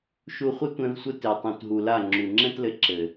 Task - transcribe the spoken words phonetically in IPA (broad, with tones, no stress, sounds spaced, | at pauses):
ʃ u˧ χʷ ɘ˦ tʷ ɛ̃˧ v sʷ ɘ˧ t e˨ tˤ ũ˨ t ɦ u˨ l a˦˨ ŋ͡ǁ u˨ ŋ͡ǁ ɛ̃˦ t l ɘ˧ ǁ ɘ˨